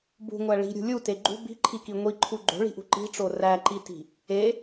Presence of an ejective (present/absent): absent